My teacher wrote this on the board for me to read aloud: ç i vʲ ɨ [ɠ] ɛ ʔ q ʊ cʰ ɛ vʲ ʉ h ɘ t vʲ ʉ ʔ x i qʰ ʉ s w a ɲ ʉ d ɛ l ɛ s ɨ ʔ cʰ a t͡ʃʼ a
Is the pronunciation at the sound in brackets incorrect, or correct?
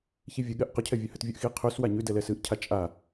correct